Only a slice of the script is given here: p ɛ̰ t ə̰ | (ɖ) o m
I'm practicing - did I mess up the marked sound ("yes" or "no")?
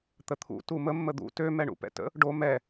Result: no